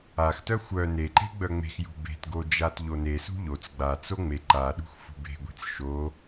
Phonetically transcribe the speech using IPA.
a x t œ xʷ œ n e ǃ e̤ ɡ͡b œ ŋ͡m e̤ x j ṳ b e̤ t ɡ o d͡ʒ a t ʎ o n e s ṳ ʎ o t͡s ɡ͡b a t͡s o ŋ͡m e ǃ a ɗ ṳ x f ṳ b e̤ ɡʷ e̤ t͡s ʃ o

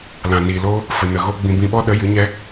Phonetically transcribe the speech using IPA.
l ã˨ n iː˨ l oː˦ | f ə˨ n ə˨ ɣ o˦ ɡ͡b ĩ˧ b ĩ˧ ɓ ɔ˦ ɗ ə˨˦ j ɨ˨˦ ɲ ɛ˦

